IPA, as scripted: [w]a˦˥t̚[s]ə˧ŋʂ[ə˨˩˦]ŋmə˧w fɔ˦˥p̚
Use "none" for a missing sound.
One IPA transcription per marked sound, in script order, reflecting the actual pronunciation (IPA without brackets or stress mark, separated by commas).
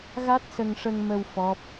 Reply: ɣ, s, ə˧